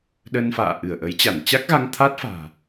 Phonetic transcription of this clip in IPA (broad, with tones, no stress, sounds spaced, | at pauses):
ɗ ə˧ n f a̰ː˧˨ ʔ ɨ˧˩ ə̯ ʔ ə˨˦ j t͡ɕ a˧˩ n t͡ɕ a˦˥ k̚ ɣ a˧ ŋ t̪ʰ a˦˥ t̚ f a̤ː˨˩